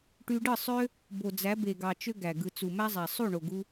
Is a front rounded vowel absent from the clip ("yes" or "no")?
no